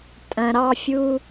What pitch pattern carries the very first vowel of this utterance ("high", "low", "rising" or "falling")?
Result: low